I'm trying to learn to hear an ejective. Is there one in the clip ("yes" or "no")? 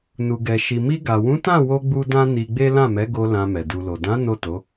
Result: no